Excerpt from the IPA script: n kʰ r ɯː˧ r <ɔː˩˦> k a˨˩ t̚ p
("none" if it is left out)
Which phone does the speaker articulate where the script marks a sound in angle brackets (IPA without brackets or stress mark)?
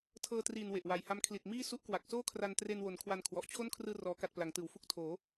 ɔː˩˦